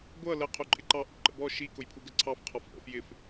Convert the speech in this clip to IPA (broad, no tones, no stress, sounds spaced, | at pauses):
ɡʷ ʌ l ə qʰ u ǃʼ ɪ ǃ ɑ ʔ ṵ ǃ ə̰ b ɔ ʃ i k ʊ j pʰ u ɡ ə ǀʰ ɑ f qʰ ɔ f ʔ ə̰ f j ɪ f